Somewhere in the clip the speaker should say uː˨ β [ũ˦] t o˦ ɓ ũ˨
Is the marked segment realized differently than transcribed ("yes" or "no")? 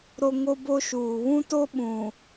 no